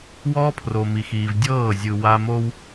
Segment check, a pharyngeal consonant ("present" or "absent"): absent